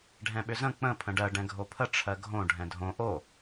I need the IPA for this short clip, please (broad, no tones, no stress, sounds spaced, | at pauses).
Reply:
ɖʱ ɛ̃ ɓ ʏ z ə̃ k͡p ə̃ pʰ ə̃ ɖ ɜ ɖ ɛ̃ ɡʱ o pʰ ə ʈ͡ʂʰ ɜ ɡʱ õ ɖʱ ɛ̃ dʱ õ ʔ o